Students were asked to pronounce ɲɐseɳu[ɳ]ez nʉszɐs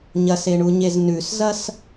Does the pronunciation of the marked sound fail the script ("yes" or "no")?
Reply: yes